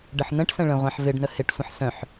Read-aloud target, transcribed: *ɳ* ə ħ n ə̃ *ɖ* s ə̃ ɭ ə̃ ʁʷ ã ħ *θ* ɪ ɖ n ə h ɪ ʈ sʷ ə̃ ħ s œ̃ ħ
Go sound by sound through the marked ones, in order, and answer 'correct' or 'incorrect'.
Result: incorrect: ɖ, incorrect: ʈ, incorrect: v

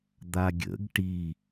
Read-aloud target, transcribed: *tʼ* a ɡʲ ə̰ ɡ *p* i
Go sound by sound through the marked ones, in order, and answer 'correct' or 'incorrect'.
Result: incorrect: d̪, incorrect: ʈ

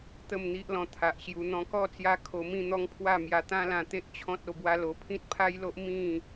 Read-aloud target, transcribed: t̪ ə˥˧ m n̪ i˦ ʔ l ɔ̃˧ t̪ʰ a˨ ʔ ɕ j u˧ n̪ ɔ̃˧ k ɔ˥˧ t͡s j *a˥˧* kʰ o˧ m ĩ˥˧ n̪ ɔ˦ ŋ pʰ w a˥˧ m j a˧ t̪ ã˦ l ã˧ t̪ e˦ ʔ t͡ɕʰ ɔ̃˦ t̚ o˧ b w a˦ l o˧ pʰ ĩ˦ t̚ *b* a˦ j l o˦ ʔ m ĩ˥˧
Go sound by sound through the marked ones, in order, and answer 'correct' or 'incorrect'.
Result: incorrect: a˦, incorrect: pʰ

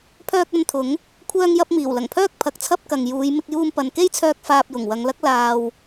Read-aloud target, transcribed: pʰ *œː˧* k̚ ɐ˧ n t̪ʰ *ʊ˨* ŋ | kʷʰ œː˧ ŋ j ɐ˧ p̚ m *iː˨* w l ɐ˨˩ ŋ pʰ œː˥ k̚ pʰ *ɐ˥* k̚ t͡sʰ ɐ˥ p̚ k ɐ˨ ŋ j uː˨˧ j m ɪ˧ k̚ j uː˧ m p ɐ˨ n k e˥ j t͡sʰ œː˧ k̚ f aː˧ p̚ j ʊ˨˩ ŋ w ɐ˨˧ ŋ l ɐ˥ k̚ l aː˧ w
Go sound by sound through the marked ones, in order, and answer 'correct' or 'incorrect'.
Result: correct, incorrect: ʊ˨˥, incorrect: iː˨˩, incorrect: ɐ˨˥

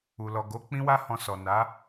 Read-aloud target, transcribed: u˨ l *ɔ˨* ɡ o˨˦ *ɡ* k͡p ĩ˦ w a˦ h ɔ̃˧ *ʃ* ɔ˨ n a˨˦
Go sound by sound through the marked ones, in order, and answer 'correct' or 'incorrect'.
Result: correct, incorrect: none, incorrect: s

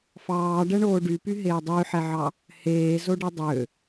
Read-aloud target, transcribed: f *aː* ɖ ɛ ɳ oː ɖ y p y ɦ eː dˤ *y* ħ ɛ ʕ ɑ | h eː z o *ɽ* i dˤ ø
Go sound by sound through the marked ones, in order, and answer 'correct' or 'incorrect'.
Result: incorrect: ɑː, correct, incorrect: ɖ

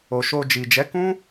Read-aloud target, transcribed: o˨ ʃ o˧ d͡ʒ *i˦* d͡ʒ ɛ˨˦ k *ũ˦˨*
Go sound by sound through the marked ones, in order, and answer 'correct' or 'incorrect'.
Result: incorrect: i˨, incorrect: ũ˦

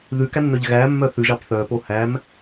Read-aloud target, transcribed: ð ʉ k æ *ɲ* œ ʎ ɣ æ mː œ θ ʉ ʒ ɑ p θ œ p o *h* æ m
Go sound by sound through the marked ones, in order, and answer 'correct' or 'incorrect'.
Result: incorrect: nː, correct

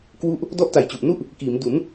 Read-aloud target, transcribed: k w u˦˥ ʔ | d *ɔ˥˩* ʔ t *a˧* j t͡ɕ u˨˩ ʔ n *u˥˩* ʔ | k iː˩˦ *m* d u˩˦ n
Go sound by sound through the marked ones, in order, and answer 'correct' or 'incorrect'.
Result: correct, incorrect: a˨˩, correct, correct

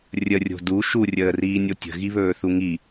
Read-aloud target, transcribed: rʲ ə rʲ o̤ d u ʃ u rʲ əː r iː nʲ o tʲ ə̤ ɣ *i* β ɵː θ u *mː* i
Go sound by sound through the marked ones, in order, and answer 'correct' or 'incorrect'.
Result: correct, incorrect: ŋ

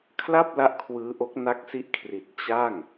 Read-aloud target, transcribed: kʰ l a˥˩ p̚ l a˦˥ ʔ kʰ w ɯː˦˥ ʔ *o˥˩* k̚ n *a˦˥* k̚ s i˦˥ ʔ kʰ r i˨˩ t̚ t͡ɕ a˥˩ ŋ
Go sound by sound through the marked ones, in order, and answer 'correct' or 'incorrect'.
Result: incorrect: o˦˥, correct

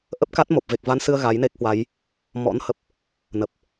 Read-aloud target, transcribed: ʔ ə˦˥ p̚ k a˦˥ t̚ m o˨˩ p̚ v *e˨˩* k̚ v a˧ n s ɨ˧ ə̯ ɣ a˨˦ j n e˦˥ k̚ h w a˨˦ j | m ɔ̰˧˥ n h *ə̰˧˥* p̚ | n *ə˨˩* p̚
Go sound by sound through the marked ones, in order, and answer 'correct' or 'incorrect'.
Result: correct, incorrect: ə˨˩, correct

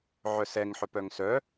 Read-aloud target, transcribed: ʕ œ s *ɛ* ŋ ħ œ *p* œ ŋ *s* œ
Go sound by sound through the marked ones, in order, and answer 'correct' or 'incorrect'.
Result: correct, correct, correct

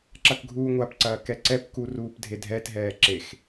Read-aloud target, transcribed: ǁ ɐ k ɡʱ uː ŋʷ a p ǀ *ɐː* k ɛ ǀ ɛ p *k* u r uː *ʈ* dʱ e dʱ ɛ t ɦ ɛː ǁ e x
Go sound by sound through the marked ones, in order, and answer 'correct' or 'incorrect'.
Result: correct, correct, incorrect: p

